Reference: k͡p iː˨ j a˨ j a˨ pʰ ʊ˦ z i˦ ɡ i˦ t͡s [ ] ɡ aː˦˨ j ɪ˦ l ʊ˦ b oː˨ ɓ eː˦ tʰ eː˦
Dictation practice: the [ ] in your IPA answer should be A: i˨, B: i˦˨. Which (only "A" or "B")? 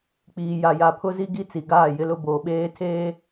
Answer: A